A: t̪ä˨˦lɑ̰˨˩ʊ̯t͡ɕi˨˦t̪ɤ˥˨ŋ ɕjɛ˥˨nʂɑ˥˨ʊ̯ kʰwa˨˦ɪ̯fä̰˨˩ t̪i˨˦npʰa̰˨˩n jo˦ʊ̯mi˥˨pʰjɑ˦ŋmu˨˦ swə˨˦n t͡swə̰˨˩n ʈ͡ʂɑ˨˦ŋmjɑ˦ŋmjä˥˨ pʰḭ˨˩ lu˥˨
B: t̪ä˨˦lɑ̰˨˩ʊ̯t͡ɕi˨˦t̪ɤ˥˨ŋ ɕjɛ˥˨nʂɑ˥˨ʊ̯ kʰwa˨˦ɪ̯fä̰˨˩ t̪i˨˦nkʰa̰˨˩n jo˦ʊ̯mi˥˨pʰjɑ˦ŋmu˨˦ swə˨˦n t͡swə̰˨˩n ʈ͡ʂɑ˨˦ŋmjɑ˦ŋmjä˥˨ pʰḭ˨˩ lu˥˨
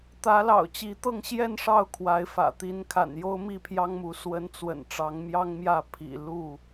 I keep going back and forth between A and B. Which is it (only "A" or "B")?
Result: B